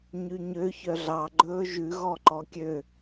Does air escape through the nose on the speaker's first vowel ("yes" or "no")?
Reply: no